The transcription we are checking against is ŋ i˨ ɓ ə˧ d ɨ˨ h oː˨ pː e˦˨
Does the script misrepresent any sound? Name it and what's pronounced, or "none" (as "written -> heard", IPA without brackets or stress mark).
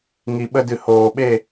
pː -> ɓ